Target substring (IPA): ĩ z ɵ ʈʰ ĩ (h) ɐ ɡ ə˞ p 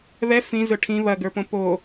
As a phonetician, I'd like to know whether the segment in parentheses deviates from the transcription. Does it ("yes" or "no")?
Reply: yes